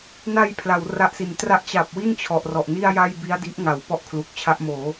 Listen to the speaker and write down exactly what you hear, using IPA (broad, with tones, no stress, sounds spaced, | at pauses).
n a˧ j pʰ l a˩˦ w r a˦˥ ʔ s i˩˦ n t r a˦˥ ʔ t͡ɕ a˨˩ p̚ w i˥˩ n t͡ɕʰ ɔ˨˩ ʔ r ɔ˨˩ ʔ n i˥˩ a̯ j a˥˩ j b i˦˥ a̯ d i˦˥ ʔ ŋ a˨˩ w p ɔ˥˩ ʔ kʰ l uː˨˩ k̚ t͡ɕʰ a˦˥ ʔ m oː˩˦